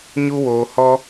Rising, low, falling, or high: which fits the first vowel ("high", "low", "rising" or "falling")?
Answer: high